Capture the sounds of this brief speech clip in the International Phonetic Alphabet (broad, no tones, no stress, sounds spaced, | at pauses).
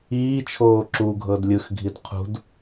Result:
iː t͡ʃʰ oː ǁ u ɡʱ ɤ d lʲ ɯ x ɡʱ i d qʰ ṳ d